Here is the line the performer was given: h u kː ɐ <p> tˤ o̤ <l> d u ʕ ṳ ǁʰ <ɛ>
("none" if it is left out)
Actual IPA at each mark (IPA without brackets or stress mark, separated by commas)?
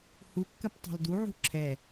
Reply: p, l, ɛ